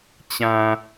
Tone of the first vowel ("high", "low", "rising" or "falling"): low